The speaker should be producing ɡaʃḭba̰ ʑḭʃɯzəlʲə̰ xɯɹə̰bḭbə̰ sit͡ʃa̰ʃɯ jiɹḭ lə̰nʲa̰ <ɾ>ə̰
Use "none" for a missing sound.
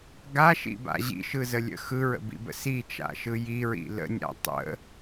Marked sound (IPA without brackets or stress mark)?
tˤ